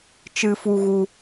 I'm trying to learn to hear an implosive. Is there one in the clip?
no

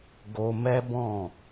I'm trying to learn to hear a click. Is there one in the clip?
no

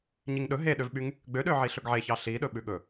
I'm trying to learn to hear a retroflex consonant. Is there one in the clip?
no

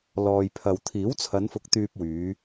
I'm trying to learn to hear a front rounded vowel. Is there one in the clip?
yes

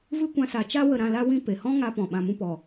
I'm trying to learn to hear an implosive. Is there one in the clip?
yes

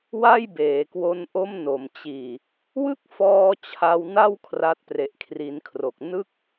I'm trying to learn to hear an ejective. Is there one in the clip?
no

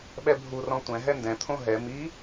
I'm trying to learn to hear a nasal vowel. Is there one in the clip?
yes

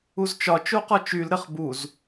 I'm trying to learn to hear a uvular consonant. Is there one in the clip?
yes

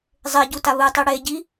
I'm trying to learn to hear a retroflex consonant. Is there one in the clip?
yes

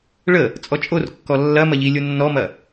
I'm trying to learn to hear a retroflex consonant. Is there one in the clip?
yes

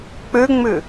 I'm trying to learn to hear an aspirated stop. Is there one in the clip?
no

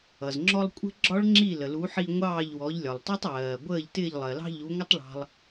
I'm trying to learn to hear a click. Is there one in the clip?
yes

